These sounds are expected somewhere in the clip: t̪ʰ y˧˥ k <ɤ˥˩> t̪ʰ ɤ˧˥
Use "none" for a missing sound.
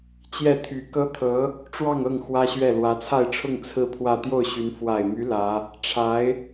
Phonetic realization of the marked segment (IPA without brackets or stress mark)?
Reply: ɤ˥